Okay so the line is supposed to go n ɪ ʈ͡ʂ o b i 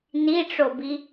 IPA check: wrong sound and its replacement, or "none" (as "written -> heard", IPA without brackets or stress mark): ɪ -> i